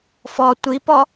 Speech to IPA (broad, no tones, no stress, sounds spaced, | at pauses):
f ɔ tʷ i p ɔ